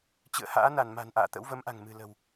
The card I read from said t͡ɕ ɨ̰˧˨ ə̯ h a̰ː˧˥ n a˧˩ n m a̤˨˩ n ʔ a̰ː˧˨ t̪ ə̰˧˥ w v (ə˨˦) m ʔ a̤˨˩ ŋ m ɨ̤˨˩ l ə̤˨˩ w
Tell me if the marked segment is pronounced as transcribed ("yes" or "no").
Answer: yes